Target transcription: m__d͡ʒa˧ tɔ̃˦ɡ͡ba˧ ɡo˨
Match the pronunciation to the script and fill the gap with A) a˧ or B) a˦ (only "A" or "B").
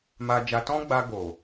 A